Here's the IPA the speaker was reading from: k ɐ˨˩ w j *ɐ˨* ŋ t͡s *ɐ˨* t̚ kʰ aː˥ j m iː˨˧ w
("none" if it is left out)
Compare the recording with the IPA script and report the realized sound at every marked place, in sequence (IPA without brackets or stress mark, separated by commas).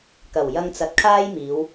ɐ˧, ɐ˨